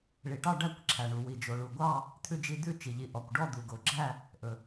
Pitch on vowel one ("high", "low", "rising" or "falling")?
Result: low